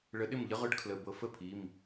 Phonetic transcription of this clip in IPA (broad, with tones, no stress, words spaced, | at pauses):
ɭə˨˦ɗɪ˥˩mʎə˦˥ ʁʊ˦˥ɖkʰlə˩˧˩ bɤ˨˦fə˥˩pʰi˩˧˩m